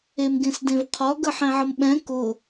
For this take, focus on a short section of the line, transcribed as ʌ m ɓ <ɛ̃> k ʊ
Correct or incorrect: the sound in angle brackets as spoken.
correct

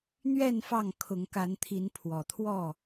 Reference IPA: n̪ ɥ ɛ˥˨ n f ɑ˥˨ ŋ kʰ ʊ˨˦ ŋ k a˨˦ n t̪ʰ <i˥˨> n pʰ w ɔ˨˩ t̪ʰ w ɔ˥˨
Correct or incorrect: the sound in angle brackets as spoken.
incorrect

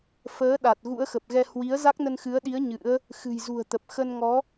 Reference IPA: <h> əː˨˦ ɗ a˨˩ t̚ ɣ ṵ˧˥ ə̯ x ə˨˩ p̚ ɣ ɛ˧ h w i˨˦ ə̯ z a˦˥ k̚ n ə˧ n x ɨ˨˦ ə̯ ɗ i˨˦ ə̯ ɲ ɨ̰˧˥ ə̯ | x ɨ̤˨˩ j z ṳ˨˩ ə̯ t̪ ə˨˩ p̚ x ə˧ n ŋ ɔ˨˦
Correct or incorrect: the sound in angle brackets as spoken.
incorrect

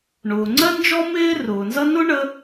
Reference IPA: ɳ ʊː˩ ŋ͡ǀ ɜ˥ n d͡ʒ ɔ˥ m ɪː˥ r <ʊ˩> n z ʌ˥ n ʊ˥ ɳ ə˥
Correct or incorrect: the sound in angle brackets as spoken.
incorrect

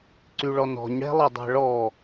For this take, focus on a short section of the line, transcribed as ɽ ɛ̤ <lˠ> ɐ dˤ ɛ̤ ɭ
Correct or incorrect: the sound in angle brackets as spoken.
correct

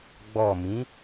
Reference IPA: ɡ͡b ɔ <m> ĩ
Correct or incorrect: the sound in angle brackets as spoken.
correct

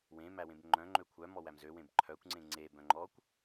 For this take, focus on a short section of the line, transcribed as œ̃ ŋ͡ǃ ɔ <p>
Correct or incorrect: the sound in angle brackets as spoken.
incorrect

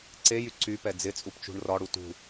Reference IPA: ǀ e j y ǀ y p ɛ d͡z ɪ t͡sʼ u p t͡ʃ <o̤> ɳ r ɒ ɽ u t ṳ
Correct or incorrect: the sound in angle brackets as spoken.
incorrect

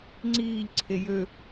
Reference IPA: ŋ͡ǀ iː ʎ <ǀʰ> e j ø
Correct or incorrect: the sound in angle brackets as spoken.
correct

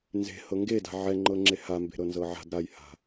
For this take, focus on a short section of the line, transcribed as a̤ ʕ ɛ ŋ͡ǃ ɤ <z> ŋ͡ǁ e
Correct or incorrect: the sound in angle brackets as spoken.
incorrect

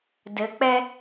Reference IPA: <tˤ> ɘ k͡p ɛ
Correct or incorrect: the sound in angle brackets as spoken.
incorrect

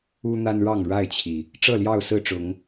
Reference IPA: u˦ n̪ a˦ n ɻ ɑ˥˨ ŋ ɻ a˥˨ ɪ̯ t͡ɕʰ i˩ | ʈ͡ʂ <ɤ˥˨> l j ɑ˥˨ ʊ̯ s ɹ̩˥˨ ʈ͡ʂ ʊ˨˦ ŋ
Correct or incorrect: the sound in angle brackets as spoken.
correct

